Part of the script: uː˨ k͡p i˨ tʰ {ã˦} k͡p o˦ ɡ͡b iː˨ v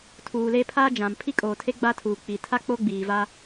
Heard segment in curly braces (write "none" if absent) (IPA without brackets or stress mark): a˦